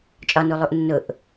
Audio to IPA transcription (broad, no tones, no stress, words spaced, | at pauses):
t͡ʃʼɒnulˠuʔ nːʊʔ